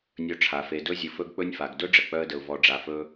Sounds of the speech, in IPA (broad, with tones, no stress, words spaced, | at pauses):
nʲɵ˧ʈ͡ʂʰa˨ fe˨dɵ˧zʲɨ˨ fɵ˧ɡk͡pɵ˧nʲfa˨ɡ dɵ˦ɖ͡ʐə˨k͡pœ˧ə̯də˨ʊ̯ vɔ˨ɖ͡ʐa˨fɵ˧